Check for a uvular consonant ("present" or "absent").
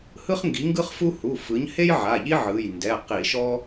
present